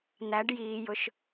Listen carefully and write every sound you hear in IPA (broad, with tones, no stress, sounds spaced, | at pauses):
n̪ æ˨˦ ɖ j iː˨ j ʊ˨ ʃ